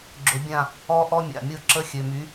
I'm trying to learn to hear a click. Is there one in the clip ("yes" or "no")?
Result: yes